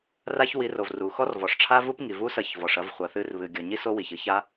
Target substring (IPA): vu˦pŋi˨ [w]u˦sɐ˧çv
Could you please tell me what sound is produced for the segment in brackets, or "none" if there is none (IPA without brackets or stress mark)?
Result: v